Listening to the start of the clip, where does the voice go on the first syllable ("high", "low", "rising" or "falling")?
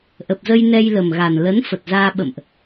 low